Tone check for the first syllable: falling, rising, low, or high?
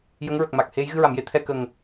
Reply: rising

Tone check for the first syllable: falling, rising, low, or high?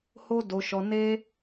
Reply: high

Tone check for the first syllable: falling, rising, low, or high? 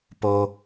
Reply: low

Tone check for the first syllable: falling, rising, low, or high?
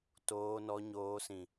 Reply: low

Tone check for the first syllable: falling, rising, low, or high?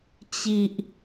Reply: low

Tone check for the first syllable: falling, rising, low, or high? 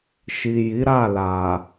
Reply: low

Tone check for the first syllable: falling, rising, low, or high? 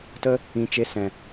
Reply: high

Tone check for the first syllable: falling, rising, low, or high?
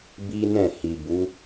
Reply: high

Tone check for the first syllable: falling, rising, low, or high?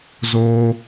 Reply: high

